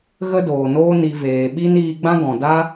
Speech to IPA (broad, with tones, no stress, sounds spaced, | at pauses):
ɣ ə˦ d oː˨ n oː˦ n i˧ v eː˨ ɓ i˦ n iː˧ ɡ͡b ã˦ ɡ ɔ̃˨ d a˦